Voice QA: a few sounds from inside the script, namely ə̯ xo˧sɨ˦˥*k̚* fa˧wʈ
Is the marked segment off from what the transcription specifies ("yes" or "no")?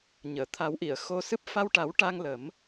yes